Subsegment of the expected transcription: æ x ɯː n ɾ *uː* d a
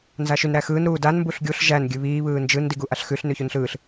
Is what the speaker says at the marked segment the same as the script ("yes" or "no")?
yes